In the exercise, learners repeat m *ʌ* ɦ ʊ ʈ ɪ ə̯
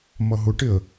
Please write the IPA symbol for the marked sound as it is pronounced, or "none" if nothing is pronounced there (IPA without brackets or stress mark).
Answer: ʌ